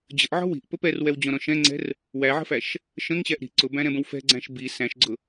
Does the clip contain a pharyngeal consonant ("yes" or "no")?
yes